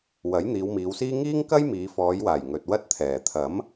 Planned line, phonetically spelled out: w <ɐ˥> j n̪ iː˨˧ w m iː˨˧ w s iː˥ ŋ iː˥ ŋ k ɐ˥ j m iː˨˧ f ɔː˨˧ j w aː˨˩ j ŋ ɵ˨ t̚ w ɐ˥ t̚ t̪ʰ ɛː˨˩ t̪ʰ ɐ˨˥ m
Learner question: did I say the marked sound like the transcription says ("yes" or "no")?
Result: no